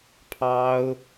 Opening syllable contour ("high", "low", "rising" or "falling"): high